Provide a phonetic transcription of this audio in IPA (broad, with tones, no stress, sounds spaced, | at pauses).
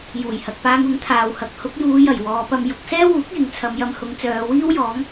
j uː˨˩ j h ɐ˨ k̚ p aː˧ ŋ ʊ˨˥ ŋ t̪ʰ aː˨ w h ɐ˨˥ k̚ h ʊ˨˥ k̚ j uː˨˧ j ɐ˨˩ j w ɔː˨˧ p ɐ˧ m j ʊ˨˥ k̚ s ɛː˥ w uː˨˥ k̚ j ɪ˨˧ ŋ t͡sʰ ɐ˨˧ m j ɐ˧ m h ʊ˨˧ ŋ t͡s œː˨˧ w iː˥ w j ɔː˨˥ ŋ